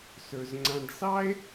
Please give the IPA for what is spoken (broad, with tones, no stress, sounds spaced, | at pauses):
s ɵ˨ z ŋ͡ǀ ã˧ ɖ s ɑ˦ e̯